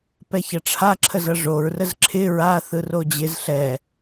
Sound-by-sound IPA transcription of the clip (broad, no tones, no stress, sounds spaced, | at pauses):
p ɛ ç ɐ ʈ͡ʂʰ a ǁʰ ə z ʌ ʐ o ɹ r ə z ǁʰ ɪ ɹ a θ ɯ r o d͡ʑ ɪ z ɬ ɛ